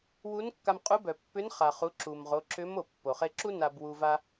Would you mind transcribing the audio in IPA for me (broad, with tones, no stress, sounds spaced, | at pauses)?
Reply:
w u˧˥ n kː a˧ m qʼ u˧˥ b œ˩ pː ʏ˧˥ n χ a˩ χ u˩˧ ǁ u˩ m ʁ o˩˧ ǁ ʏ˧˥ m o˩ pː o˩ χ e˧ ǁ u˥ n a˧ b w u˧ v a˧